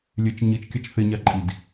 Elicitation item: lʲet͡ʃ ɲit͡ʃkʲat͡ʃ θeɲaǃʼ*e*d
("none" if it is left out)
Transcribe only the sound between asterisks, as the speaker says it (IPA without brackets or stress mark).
i